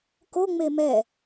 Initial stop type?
plain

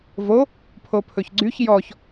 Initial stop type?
aspirated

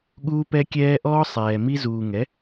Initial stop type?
implosive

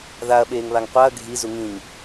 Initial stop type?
implosive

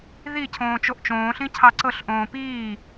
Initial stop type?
aspirated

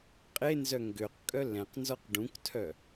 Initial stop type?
ejective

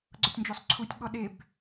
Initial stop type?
click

